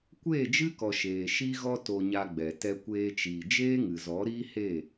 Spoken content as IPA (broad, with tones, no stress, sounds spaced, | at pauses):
kʷ eː˦˨ d͡ʒ ɨ˦ k ɔ˨ ʃ eː˨ ʃ i˦ ɣ ɔ˦ t o˧ ɲ a˧ ɡ͡b ɛ˨ t ɛ˧ kʷ eː˧ t͡ʃ iː˨ d͡ʒ eː˦ ŋ ɨ˨ z ɔ˨˦ ɾ iː˦ h eː˦˨